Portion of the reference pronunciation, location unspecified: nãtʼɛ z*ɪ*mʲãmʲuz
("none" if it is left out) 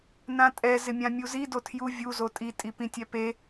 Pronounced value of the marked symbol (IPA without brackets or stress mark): ɪ